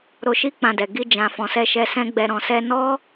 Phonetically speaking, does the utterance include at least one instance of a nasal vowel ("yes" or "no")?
yes